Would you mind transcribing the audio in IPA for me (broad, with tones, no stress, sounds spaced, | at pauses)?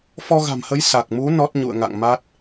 f ɔ˧ ɣ a̤˨˩ m h ə˨˦ j s a˨˩ k̚ m u˨˦ n ɔ˦˥ t̚ ɲ ṵ˧˨ ə̯ ŋ a̰˧˨ ŋ m a˦˥ t̚